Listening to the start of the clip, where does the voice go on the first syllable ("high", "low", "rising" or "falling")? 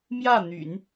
falling